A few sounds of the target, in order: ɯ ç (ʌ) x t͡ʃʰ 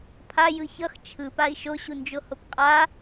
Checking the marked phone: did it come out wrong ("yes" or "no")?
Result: no